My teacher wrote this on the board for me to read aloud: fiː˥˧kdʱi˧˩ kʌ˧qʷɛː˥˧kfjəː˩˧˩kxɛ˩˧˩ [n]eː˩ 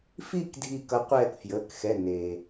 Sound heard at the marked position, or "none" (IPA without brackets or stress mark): n